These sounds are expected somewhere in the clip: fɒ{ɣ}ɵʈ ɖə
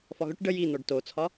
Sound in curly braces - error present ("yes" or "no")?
no